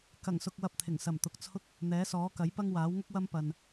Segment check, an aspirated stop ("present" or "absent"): present